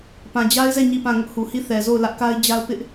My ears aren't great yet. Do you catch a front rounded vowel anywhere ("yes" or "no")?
no